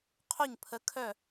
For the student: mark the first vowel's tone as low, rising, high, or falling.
falling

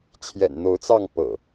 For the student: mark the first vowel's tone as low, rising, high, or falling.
low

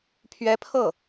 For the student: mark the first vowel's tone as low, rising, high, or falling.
rising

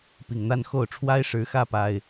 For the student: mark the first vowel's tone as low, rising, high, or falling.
low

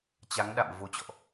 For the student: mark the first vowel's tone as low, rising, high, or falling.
rising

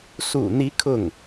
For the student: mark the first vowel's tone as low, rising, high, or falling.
low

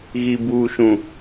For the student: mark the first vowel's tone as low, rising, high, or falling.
low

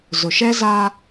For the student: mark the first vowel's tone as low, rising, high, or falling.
low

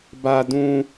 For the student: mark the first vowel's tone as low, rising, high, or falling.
high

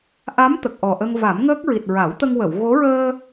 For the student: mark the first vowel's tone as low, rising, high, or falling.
rising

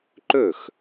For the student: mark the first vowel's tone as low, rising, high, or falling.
falling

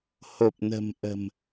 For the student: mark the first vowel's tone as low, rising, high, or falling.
low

